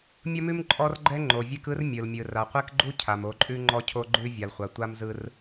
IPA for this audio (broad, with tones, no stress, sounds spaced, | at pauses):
mʲ ʌ˦ m ʉ˦ m ǃʼ ɔ˦ r ɡ͡ǃ ɛ˦ ŋ͡ǃ o˨ vʲ e˦ k ɯ˦ r mʲ ɯ˨ l mʲ ɯ˨ r a˨ qʷ e˦ k ɡ͡ǃ u˦ cʰ a˨ m o˨˦ ǃʼ ʉ˦ ŋ͡ǃ ɔ˦ cʰ o˦ ɡ͡ǃ ʉ˦ vʲ a˨ l χʷ a˨ tʷ a˦ m z ɯ˦ r